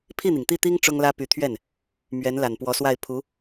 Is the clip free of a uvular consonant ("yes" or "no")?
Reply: yes